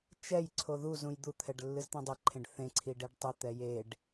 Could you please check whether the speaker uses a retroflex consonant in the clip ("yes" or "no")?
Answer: yes